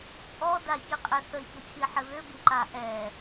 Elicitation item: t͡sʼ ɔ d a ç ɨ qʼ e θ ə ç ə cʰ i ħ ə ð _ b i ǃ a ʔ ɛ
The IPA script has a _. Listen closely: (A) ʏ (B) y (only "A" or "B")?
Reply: A